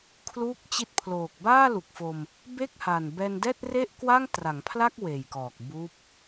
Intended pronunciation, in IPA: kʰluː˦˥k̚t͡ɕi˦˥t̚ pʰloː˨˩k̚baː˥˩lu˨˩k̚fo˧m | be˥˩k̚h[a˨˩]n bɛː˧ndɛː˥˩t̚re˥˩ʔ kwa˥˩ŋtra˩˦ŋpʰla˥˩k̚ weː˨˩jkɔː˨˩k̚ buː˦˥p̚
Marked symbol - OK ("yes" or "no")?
yes